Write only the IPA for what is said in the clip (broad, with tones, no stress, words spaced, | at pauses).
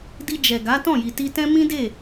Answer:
di˧d͡ʒɛ˨ɡa˨˦ tɔ̃˦˨ji˨ti˧tɛ̃˦ mĩ˦de˦˨